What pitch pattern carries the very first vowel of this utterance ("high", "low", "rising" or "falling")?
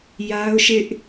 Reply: high